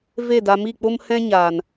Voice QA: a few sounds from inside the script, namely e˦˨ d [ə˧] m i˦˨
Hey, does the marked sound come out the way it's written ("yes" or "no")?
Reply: no